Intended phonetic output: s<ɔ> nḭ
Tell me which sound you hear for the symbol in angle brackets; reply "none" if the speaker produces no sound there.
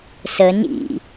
ə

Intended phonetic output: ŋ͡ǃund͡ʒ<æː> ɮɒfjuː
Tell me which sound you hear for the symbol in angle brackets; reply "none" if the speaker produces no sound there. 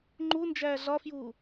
æː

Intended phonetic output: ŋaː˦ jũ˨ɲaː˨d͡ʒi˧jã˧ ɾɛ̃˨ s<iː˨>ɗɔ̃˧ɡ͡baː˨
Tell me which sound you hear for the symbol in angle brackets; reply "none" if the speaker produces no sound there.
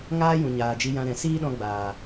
iː˦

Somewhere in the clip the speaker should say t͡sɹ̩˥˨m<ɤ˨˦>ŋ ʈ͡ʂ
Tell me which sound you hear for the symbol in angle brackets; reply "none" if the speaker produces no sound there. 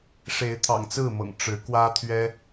ɤ̰˨˩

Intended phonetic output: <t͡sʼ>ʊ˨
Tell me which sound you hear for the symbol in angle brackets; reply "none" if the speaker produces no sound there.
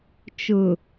t͡ʃ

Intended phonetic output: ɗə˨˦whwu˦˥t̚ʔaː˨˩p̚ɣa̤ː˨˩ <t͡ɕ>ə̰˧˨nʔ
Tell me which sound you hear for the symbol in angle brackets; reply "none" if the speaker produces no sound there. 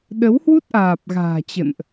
t͡ɕ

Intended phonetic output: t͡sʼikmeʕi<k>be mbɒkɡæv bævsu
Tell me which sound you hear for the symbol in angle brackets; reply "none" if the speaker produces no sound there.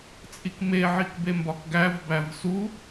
k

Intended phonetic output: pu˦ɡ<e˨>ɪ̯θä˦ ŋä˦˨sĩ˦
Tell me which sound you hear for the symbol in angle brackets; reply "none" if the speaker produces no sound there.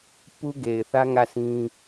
e˨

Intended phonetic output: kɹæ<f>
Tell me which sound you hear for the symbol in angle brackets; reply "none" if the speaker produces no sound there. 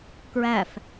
f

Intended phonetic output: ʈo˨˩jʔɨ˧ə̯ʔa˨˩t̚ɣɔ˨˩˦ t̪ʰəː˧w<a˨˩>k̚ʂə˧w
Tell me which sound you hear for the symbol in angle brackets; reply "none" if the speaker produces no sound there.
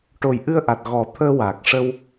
aː˨˩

